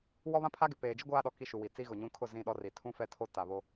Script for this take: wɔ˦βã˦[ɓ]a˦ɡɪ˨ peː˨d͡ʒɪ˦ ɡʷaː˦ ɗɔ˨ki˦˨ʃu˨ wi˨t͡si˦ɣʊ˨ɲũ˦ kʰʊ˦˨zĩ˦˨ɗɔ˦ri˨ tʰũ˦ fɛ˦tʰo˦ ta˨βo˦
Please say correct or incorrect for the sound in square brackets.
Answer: incorrect: pʰ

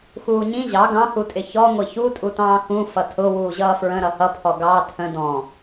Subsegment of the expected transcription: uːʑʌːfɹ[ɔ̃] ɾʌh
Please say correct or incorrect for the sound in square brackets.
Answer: incorrect: ə̃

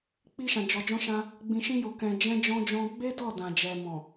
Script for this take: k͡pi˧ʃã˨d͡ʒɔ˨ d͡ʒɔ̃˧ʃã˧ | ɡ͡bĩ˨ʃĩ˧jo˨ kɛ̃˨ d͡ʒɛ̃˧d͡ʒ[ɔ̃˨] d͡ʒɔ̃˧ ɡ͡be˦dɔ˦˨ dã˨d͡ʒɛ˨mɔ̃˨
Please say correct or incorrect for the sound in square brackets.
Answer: incorrect: ɔ̃˧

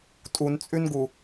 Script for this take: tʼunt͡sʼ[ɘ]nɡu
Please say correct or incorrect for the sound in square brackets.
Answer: incorrect: ʉ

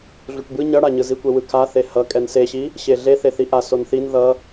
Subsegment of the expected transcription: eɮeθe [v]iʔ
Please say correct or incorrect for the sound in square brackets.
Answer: incorrect: θ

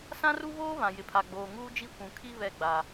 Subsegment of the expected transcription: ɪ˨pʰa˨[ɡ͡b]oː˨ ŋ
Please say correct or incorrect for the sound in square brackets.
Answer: correct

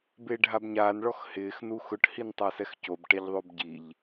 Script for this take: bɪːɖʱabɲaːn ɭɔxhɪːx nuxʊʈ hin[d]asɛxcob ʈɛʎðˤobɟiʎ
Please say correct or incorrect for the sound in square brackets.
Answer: incorrect: tˤ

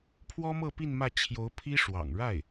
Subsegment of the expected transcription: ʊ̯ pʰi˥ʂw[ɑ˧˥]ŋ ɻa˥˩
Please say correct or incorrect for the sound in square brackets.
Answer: incorrect: ɑ̰˨˩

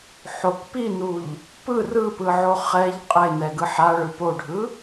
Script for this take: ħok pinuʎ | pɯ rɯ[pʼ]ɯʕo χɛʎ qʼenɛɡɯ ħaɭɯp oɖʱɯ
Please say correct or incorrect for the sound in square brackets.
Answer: incorrect: p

